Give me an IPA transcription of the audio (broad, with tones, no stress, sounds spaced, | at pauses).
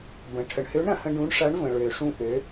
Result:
b ə̃˩ ʈʰ ə˩ ɳ h ø˧˥ ɳ ɾ ɐ̃˩ h ə̃˧ ɖ ũ˧˥ ɳ ʂ ɐ˧˥ ɳ v ə̃˩ ɭ ø˩ ʂ ũ˧ ʔ ø˩˧